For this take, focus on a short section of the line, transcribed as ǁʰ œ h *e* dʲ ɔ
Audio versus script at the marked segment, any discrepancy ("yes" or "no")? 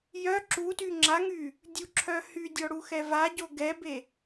yes